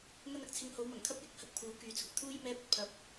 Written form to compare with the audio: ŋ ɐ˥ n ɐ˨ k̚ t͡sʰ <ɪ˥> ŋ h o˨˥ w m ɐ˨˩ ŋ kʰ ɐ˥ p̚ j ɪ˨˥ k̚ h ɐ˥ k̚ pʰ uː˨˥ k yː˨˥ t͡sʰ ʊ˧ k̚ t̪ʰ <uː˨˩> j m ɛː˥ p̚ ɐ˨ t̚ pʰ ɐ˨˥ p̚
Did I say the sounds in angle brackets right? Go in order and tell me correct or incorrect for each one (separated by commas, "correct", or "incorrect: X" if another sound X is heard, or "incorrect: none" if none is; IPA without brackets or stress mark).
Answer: incorrect: ɪ˧, incorrect: uː˥